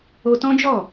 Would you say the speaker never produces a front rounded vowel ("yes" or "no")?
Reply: yes